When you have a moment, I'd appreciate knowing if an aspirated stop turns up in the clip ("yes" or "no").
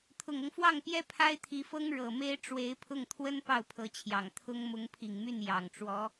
yes